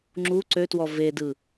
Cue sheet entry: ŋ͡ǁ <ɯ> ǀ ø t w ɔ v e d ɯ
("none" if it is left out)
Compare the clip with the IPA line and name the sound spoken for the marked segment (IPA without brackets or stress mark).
u